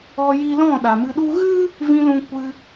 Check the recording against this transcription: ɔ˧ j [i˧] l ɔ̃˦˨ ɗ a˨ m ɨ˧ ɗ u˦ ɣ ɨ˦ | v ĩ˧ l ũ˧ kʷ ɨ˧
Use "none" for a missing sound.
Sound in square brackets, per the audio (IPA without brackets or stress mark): i˧